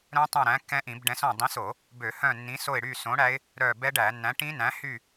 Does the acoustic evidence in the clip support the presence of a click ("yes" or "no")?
no